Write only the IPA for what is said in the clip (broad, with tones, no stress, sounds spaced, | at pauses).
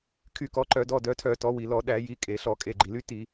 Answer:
kʰ y˧˩˧ k ɔ˩˧ ǃ œ˧˩˧ d ɔ˩˧˩ d œ˩˧ tʰ œ˧˩˧ t ɔ˩˧ w i˩ l ɔ˧˩˧ ɗ æ˧˩˧ j i˩˧˩ kʼ e˩ ɬ ɔ˧˩˧ kʼ e˩˧˩ ɡ͡ǃ i˩ l y˧˥ t i˧˩˧